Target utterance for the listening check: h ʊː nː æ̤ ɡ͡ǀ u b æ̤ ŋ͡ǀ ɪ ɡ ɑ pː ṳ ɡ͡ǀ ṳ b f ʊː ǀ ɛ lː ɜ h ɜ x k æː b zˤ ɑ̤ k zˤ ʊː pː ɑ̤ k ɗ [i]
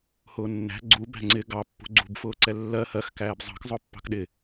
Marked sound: incorrect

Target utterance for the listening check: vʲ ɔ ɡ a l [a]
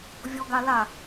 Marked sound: correct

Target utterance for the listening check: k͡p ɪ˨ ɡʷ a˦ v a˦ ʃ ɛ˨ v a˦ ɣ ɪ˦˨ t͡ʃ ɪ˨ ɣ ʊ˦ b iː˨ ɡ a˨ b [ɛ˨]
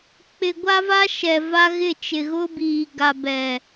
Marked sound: correct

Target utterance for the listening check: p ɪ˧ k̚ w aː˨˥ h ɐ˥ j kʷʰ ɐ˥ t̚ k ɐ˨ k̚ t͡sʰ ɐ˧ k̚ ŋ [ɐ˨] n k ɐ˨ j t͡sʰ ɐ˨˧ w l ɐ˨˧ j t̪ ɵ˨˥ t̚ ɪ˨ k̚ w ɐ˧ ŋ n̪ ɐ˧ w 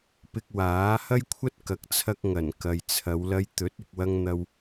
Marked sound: incorrect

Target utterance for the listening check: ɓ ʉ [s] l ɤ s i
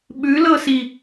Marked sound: incorrect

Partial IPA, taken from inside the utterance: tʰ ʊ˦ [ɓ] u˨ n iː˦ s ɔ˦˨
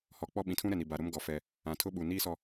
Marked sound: correct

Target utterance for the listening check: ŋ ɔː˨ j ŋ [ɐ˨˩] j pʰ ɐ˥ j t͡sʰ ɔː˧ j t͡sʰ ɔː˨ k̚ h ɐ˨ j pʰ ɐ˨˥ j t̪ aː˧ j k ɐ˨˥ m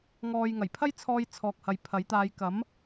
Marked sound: correct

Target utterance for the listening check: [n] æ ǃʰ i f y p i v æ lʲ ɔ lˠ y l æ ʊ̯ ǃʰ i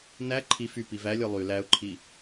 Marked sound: correct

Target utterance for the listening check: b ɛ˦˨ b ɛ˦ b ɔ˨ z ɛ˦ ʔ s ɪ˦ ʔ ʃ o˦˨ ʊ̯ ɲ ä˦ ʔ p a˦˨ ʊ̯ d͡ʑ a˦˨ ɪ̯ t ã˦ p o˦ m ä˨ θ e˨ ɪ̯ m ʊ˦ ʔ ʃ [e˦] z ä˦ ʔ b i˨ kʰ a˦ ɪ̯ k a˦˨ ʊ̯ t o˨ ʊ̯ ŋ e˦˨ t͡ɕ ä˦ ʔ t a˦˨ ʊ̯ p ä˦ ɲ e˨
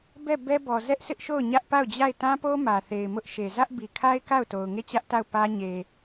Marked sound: incorrect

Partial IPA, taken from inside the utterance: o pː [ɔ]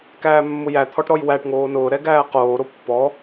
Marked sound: correct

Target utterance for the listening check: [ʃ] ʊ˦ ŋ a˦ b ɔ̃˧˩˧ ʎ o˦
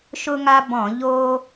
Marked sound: correct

